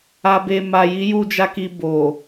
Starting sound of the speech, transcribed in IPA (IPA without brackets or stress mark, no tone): a